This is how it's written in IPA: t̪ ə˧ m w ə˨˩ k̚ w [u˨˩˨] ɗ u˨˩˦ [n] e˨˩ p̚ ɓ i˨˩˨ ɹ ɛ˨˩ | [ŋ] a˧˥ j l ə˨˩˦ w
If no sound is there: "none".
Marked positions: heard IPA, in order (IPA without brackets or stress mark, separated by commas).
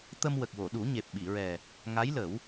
o˨˩˨, ɲ, ŋ